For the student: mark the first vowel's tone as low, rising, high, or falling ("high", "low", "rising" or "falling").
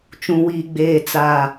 low